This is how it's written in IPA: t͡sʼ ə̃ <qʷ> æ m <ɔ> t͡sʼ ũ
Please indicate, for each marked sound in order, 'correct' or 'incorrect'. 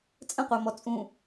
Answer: correct, correct

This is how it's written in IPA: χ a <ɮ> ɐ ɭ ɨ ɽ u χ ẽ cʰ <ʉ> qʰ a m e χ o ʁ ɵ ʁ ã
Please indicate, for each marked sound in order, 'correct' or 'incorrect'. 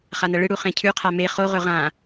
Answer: incorrect, correct

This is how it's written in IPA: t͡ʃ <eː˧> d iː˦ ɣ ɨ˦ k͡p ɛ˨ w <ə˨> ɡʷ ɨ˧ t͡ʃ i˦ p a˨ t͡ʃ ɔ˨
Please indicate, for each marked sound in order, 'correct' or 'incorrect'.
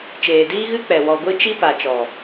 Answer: incorrect, incorrect

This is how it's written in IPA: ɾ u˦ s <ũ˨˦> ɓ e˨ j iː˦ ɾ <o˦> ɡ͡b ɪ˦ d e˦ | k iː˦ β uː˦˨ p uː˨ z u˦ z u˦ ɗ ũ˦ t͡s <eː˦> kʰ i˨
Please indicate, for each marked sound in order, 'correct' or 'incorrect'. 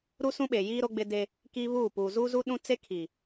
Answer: incorrect, correct, incorrect

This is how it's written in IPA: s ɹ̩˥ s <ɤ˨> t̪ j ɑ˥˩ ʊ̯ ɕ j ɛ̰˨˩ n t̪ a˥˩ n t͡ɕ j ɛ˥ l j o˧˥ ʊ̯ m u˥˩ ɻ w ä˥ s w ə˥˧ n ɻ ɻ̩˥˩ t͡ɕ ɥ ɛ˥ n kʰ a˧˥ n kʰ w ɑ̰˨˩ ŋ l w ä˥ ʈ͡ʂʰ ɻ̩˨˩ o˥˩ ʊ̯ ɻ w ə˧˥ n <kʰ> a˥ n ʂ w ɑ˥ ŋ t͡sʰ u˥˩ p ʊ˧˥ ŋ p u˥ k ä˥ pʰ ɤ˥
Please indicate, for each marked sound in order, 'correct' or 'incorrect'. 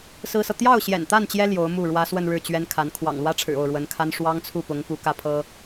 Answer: correct, correct

